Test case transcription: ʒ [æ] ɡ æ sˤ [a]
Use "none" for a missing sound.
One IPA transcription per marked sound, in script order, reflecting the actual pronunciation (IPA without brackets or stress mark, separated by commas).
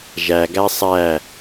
æ, æ